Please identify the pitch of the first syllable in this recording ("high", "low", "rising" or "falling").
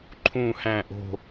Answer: falling